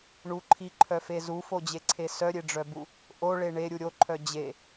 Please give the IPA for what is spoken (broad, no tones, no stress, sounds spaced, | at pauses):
ɳ u ǃʰ i ǃʰ œ f e z u f o d͡ʑ e ǀʰ e s œ ɾʲ e ɖ͡ʐ œ b u | ʔ o ɭ e ɳ e ɾʲ u ɾʲ o ǃʰ œ d͡ʑ e